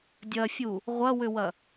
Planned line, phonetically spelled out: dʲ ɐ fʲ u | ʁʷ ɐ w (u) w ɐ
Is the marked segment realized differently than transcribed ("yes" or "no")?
yes